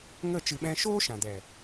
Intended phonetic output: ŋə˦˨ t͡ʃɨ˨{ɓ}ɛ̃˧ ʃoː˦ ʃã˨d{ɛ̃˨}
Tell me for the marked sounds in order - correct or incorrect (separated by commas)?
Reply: correct, incorrect